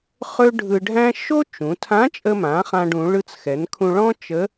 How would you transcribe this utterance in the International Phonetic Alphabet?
χ ɵ˥ ɖʱ ɯ˧ ɖʱ æ̃˥ ʃ o˥ t͡ʃ ũ˩˧ tʰ ã˧˥ t͡ʃʼ ə˧ m ã˩˧ χ ã˧ ɖ ũ˩˧ ɭ ɯ˧ t͡s x ɛ˩˧ n kʰ ũ˧ ɭ ɔ̃˥ t͡ʃ ə˧˥

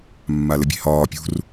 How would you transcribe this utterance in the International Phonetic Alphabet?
mː a l ɘ bʲ e̤ h ɒː pʲ ṳ r

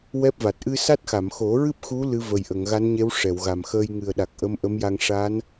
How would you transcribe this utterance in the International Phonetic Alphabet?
w ɛ˦˥ p̚ v a˨˩ t̚ ʔ ɨ˧ s a˦˥ t̚ x a˨˩˨ m x o˨˩˦ ɹ ɨ˦˥ p̚ x u˧˥ l ɨ˧˥ v ə˨˩ j ʔ ə˨˩˨ ŋ ɣ a˧˥ n ɲ e˧˥ w ʂ ɛ˨˩˨ w ɣ a˨˩ m x əː˧ j ŋ ɨ˨˩ ə̯ ɗ a˨˩ k̚ ʔ ə˧˥ m ʔ ə˧˥ m j a˧ ŋ ʂ a˧˥ n

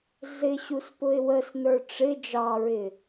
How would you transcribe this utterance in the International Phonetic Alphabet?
ɮ ɪ ɕ u s p ʊ ɪ̯ w ə s n ə˞ ʈ͡ʂ ɪ d͡ʒ ɑ ɹ ɪ

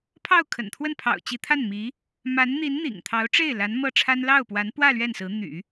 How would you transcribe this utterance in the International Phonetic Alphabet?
pʰ ɑ˥˩ ʊ̯ kʰ ə̰˨˩ n t̪ʰ w ə˥˩ n pʰ ɑ̰˨˩ ʊ̯ t͡ɕ i˧˥ t̪ʰ a˥˩ n m i˧˥ | m a˧˥ n n̪ i˧˥ n n̪ ḭ˨˩ ŋ t̪ʰ ɑ˧˥ ʊ̯ ʈ͡ʂ e˥˩ ɪ̯ l a˧˥ n m ɤ˥˩ ʈ͡ʂʰ a˥ n l ɑ˥˩ ʊ̯ p w a˧˥ n p w ä˥˧ l ɥ ɛ˥˩ n s ɹ̩˧˥ n̪ y̰˨˩˦

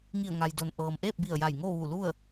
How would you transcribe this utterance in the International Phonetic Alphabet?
ŋ i˧˩ ə̯ ŋ a˩ j d o˩ n ʔ ɤː˩ m ʔ eː˥˨ p̚ b i˧˩ ə̯ j a˧˩ j ŋ o˥˨ ʋ u˧˩ l u˥˨ ə̯

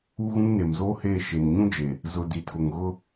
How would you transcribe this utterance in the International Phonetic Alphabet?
u˦ ɣ ũ˦ ŋ n e˨ m z oː˦ h eː˦˨ ʃ e˨ n ɲ ũ˦ d͡ʒ e˨ | z ʊ˨ d i˨ tʰ ʊ˨ ŋ ɣ ʊ˦

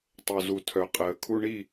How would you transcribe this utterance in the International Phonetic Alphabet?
tˤ o˨ z u˨ tʰ œ˨ qʼ əː˨ kʰ u˧ ɳ i˦˨

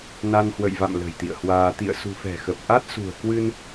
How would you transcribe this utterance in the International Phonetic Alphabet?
n a˧ n h w ə̰˧˨ j v a̰˧˨ m l ə̤˨˩ j t̪ ḭ˧˨ ə̯ h w aː˧ t̪ ḭ˧˨ ə̯ s ṳ˨˩ f ɛ̤˨˩ x ə˨˩ p̚ ʔ a˦˥ t̚ s ṳ˨˩ ə̯ k w ɨ˧ n

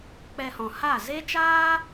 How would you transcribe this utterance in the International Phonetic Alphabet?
k͡p ɛ˧ h ɔ̃˨ h a˦˨ z e˦ t͡ʃ aː˦

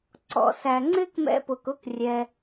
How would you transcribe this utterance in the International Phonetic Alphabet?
ǀ ɔ̰˨ s æ˨ ŋ͡ǀ ɪ˦ k m ɛ̰˧ p ʊ˨ k ʊ˦ k rʲ ɛ˧

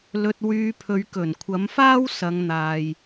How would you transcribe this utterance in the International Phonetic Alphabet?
l ɵ˧ t̚ w yː˧ pʰ ɵ˨˧ ɥ k ɵ˨˩ n kʷʰ ɐ˨˥ m f aː˥ w s ɐ˨˧ ŋ n̪ aː˨ j

